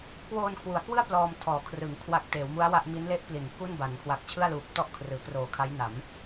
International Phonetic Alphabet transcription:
k w oː˧ n kʰ w u˩˦ a̯ k w ɯ˥˩ a̯ p l ɔː˧ m tʰ ɔː˩˦ kʰ r ɯ˩˦ ŋ kʰ w a˨˩ k̚ t eː˩˦ w m u˦˥ a̯ w a˥˩ ʔ m i˦˥ n l e˦˥ ʔ p l i˩˦ n k u˥˩ n b a˩˦ n kʰ w a˨˩ k̚ t͡ɕʰ ɯ˥˩ a̯ l uː˨˩ p̚ t ɔ˥˩ ʔ kʰ r ɯː˩˦ k r oː˨˩ kʰ a˦˥ j n a˩˦ m

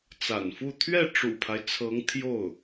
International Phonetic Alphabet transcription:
t͡s a̰˨˩ n f u˥˧ t̪ʰ ɥ ɛ˥˩ ʈ͡ʂ ṵ˨˩ pʰ a˦ ɪ̯ t͡sʰ ɤ˧˥ ŋ t̪ʰ j o˥˩ ʊ̯

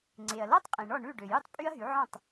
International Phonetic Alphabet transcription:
ŋ͡ǀ e˩ ɐ̯ l ɔ˥ tˤ qʼ ĩ˩ ɳ ɔ˥˩ ɳ ʉ˥˩ ɖ ø˩ j u˥˩ tˤ pʼ y˥ ɐ̯ ɦ y˩˥ ʕ ɔ̃˥˩ tˤ

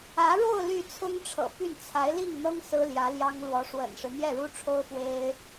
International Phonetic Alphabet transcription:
ä˧˥ ɻ o˥˧ ʊ̯ l y˥˩ t͡sʰ ʊ˥ ŋ ʈ͡ʂʰ ɤ̰˨˩ p y˥˩ n t͡sʰ a˧˥ ɪ̯ l i˥˩ ŋ n̪ ɤ˥ ŋ s ɹ̩˥ l j ä˧˥ l j ɑ˥ ŋ l w ɔ˧˥ ʂ w ə̰˨˩ n ʂ ɻ̩˦ n̪ j ɛ˥˩ ɻ u˥ ʈ͡ʂʰ o˥ ʊ̯ f w e˥ ɪ̯

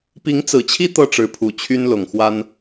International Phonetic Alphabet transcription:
p i˨˦ ŋ t͡s ɹ̩˨˩ t͡ɕʰ i˦ t̪ ɤ˥˨ ʈ͡ʂ ɻ̩˨˦ pʰ u˨˩ t͡ɕʰ y˦ n l ʊ˨˩ ŋ x w a˦ n

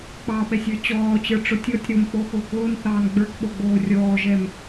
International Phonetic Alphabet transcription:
k͡p ɑ ɓ ɛ sʲ ə˞ t͡ɕ ɔː t͡ɕ ə˞ ʈ͡ʂ ʊ tʲ ɔ tʲ ɾ o m k͡p o x ʊː k ʊː n θ ɑː n ɡ͡b ə˞ k ɓ o ɡ͡b oː rʲ ɔː ʒ ɛ m

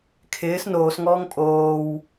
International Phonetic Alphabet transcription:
kʰ ɪː s n oː s ŋ ɔː ŋ pʼ oː w

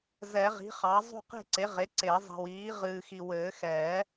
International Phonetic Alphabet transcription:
z ɛ˨˩˦ ʁ i̤˩˥ χ ɑ˩˥ zˤ ṳ˦˨ q e̤˦˨ ǀ e˩˥ ʁ e˩˥ ǀ e˨˩˦ zˤ i̤˨ w iː˩˥ ʁ ɨː˨ x i˨ w ɘː˨˩˦ x ɛː˨˩˦

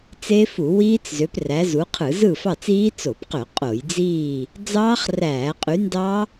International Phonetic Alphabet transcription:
t͡s e˦˥ f u˧˩˧ w iː˦˥ t͡s z ø˨˦ p r æ˨˦ z u˨˦ qʰ ɯ˧˩˧ z ɯ˥˨ f ɑ˥˨ t͡s iː˦˥ t͡s o˧˩˧ p q ø˧˩˧ qʼ o˧˩˧ j d͡z iː˥˨ | d͡z ɑː˦˥ χ r æː˧˩˧ qʼ y˨˦ n d ɑ˦˥

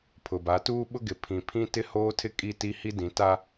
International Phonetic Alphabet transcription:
pʰ ʊ˨ b a˨˦ t uː˦ ɓ ʊ˦ ɡ ɪ˨ pʰ ĩ˨ pʰ ĩ˦ t ɪ˦ h oː˦ tʰ ɪ˦ kʼ i˦ t i˦ h i˦ d ĩ˨˦ t a˦

